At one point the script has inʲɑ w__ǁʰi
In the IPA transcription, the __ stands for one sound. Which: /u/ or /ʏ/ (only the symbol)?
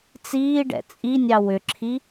ʏ